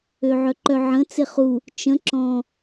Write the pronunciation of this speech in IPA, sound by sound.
ø ʕ œ ǃ œ ʕ ə̃ t͡s ɪ χ u | t͡ʃ ə̃ ǁ ɔ̃

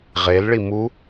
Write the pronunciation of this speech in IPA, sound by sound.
ʁ e l ɭ i m u

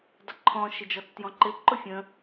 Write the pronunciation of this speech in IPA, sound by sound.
dˤ ɪ ǃʰ ɔ̃ ʃ ɪ d͡ʒ ɔ t͡s t j ɔ̃ ǃ ɪ ǃ ʊ fʲ ə̃

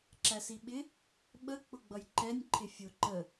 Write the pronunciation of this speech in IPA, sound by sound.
ǁ æ s i ɓ ɪ | ɓ ə k͡p ʊ ɡ͡b ʌ j ǃ ɛ nʲ ǃʰ ɪ fʲ ʊ ǃ ə

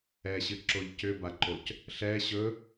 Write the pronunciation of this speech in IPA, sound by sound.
ɛ ɕ ɨ ǁ o ʎ c ʏ b a ǃ o c | ɬ ɛ ɕ ɵ

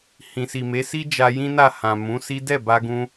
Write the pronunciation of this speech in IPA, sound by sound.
h ĩ˨ s i˨ m e˨˦ s i˦ d͡ʒ a˧ j ĩ˦ n a˦˨ h ã˨ m ũ˨˦ s i˦ d ɛ˦˨ b a˧ ɡ ũ˧

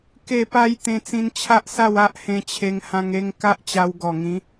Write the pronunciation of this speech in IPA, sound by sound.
k e˥˧ p a˦ j t̪ ẽ˧ t͡s ĩ˧ n t͡ɕʰ a˦ ʔ s a˥˧ w a˦ ʔ h ẽ˧ t͡ɕʰ e˧ ŋ h ã˧ ŋ e˧ ŋ k a˦ ʔ t͡ɕ a˧ w ɡ ɔ˨˩ ŋ ĩ˨˦

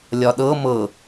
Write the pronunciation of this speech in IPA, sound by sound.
lʲ ɒ ɗ ɤ m ɤ

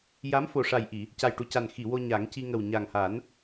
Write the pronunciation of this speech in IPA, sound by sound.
j a˧˥ m f o˨˩ ʂ a˨˩ j ʔ i˨˩˨ | c a˨˩ j ʈ u˨˩ c a˨˩ n x i˨˩˨ w o˧ ɲ a˨˩˦ ŋ c i˧ ŋ ə˨˩ w ɲ a˨˩ ŋ h a˨˩˦ n

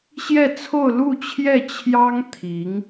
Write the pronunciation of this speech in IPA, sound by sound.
ɕ j ɛ˥˧ t͡sʰ o˥˧ ʊ̯ l u˥˧ t͡ɕʰ j ɛ˥˩ t͡ɕʰ j ɑ˥ ŋ t̪ʰ i˧˥ ŋ

